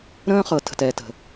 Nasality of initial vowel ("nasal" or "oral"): nasal